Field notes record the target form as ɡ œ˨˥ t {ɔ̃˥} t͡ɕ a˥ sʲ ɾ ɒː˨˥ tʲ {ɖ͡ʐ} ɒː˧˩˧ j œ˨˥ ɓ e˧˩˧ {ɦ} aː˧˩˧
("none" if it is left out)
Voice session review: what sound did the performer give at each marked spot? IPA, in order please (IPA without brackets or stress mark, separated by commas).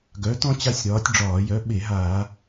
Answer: ɔ̃˥, ɖ͡ʐ, ɦ